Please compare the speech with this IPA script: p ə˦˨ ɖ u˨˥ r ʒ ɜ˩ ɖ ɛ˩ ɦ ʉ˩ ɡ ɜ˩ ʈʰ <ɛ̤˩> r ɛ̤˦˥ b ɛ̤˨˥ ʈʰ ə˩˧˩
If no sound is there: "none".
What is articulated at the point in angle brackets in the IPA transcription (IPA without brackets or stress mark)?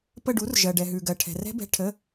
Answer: ɛ̤˩